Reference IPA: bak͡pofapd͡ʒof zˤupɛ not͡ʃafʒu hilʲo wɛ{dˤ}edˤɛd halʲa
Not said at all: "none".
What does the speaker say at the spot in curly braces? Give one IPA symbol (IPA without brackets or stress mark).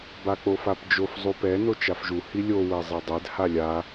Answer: zˤ